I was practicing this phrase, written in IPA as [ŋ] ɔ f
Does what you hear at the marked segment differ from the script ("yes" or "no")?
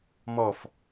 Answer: yes